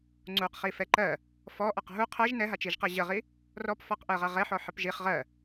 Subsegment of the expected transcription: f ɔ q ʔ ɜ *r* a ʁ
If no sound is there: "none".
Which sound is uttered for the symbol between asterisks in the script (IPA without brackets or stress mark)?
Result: ʁ